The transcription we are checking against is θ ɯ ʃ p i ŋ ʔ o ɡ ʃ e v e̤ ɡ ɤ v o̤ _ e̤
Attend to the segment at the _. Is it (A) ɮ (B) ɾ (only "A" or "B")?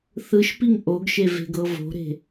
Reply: B